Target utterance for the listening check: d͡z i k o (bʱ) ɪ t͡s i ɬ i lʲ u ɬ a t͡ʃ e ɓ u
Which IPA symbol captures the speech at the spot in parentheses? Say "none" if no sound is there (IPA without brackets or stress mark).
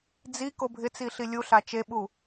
bʱ